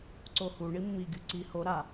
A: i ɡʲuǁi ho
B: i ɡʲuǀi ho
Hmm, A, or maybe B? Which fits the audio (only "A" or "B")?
B